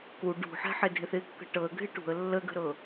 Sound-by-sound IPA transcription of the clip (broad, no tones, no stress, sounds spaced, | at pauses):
k u ɖ ṳ ħ ɛ̤ ħ ɪ dʱ ɪ θ ɪ kː ə̤ ʈ ɤ ə̯ ɡʱ ɪ ʈ ṳ ə̯ lː ə ɡ ə̤ ɾ ɤ